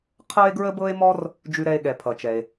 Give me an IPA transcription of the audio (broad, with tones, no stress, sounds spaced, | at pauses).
qʰ ɤ˥ e̯ ɡ ɹ ə˥ b ɤ˥ e̯ m ɔ˥ r | d͡ʒ ʉ˥ ɾ ɛ˥ e̯ ɠ ɛ˩ pʰ ʌ˩ t͡ʃ ɛ˩ e̯